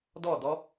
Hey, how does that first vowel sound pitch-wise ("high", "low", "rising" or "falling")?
falling